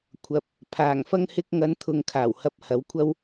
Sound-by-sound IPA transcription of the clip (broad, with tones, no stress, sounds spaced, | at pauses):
kʷʰ ɐ˨ p̚ | pʰ aː˨˩ ŋ f ɐ˧ ŋ h ɪ˧ k̚ ŋ ɐ˨˧ n t̪ʰ ʊ˨ ŋ kʰ aː˨˩ w h ɐ˨ p̚ h ɐ˨˧ w kʷʰ ɐ˥ w